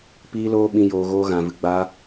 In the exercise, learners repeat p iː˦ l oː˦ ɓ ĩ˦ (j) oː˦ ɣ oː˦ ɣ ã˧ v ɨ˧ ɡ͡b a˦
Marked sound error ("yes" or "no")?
no